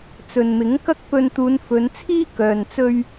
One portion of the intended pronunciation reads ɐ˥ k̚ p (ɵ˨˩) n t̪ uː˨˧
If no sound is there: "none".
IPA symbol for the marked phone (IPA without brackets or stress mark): ɵ˧